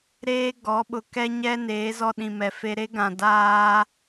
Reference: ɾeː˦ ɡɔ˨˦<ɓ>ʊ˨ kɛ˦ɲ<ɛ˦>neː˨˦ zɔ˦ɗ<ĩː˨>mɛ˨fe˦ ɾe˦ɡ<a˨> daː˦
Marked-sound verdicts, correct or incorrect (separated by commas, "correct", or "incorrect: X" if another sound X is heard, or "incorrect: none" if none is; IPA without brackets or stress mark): correct, correct, incorrect: ĩ˨, incorrect: ã˨